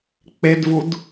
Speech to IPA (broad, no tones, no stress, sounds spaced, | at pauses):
k͡p e d v u d